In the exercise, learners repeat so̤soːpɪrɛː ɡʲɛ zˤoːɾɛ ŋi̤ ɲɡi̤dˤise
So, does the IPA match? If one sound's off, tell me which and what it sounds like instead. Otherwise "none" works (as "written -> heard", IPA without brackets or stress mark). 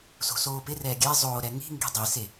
ɲ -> ŋ